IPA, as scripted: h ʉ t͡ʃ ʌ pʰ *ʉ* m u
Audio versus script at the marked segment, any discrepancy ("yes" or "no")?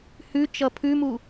no